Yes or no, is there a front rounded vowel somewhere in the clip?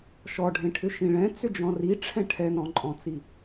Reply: yes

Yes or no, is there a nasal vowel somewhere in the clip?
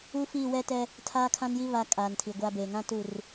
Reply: yes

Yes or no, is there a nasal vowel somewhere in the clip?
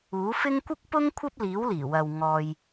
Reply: no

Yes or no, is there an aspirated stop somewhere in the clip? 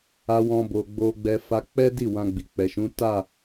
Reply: no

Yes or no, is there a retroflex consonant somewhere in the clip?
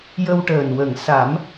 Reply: yes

